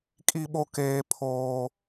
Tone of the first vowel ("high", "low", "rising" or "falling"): high